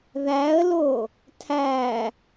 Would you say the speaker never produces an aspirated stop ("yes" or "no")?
no